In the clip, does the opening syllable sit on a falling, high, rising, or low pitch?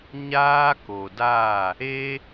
high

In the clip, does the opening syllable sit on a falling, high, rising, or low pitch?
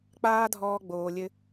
high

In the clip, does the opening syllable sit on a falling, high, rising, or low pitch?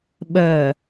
low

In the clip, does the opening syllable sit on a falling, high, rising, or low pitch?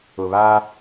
low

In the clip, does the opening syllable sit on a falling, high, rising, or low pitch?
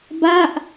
falling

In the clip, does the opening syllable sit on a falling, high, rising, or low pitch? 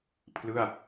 falling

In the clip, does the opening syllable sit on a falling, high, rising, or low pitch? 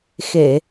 low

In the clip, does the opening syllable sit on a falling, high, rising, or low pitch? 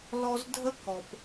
high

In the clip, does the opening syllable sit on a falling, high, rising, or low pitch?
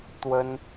high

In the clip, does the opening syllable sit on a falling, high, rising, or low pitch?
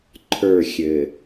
falling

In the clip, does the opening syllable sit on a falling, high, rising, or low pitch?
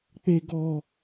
high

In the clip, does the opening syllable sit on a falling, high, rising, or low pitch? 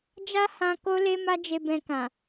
high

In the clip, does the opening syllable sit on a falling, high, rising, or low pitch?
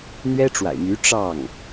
high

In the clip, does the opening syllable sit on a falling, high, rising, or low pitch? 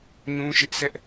high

